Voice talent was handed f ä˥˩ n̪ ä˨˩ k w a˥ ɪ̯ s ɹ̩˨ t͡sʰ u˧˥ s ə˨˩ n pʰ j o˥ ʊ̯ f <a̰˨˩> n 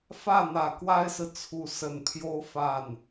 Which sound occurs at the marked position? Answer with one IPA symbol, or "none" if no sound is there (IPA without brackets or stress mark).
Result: a˥˩